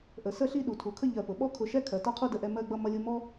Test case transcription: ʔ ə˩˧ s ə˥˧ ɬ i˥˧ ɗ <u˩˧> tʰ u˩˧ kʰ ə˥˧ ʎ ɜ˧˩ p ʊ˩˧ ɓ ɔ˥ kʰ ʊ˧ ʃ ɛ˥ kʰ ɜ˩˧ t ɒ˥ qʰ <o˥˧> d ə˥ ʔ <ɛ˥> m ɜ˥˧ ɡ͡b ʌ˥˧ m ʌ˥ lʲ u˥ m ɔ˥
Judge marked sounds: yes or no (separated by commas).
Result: yes, no, yes